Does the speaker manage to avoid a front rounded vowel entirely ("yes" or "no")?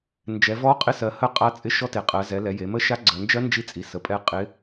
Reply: yes